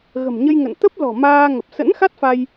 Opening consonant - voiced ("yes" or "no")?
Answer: yes